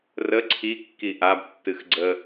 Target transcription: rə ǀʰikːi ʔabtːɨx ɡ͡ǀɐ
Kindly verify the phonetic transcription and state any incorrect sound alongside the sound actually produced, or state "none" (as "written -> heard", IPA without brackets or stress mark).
ɐ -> ə